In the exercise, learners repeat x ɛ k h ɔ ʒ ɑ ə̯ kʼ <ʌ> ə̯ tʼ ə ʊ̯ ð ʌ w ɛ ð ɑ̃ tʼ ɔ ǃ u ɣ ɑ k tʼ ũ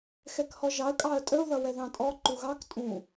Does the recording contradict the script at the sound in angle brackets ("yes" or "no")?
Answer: yes